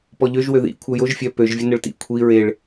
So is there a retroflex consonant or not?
yes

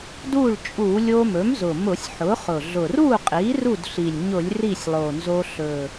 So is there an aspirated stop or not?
no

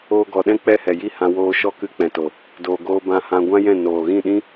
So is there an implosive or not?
yes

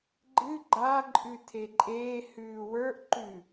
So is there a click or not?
yes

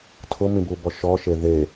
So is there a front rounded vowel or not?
no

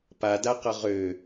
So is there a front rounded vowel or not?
yes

